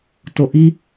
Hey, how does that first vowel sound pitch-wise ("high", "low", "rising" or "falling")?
low